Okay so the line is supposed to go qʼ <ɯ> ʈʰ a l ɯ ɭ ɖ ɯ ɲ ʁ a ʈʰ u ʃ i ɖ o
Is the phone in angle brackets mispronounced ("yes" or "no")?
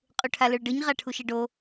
yes